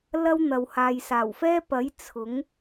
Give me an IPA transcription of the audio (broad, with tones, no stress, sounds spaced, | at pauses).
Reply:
l ɐ˥ w n̪ ɐ˨ w h aː˨ j s aː˨˩ w f ɛː˥ p ɐ˨˥ j t͡sʰ ʊ˨˥ ŋ